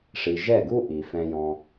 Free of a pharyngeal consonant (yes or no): yes